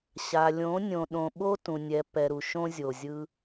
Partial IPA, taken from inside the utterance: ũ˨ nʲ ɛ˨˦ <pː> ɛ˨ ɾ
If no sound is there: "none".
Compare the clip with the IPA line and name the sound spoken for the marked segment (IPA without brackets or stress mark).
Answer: pː